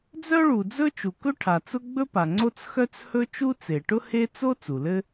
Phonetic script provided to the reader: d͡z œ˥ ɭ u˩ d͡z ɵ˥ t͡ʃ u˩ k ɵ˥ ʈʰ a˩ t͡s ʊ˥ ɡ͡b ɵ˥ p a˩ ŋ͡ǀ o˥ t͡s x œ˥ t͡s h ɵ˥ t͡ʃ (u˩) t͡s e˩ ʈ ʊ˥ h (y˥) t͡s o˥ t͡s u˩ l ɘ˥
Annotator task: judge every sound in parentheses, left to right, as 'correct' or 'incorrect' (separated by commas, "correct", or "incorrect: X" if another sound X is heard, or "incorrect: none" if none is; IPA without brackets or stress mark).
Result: incorrect: u˥, incorrect: e˥